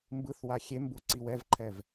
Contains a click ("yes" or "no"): yes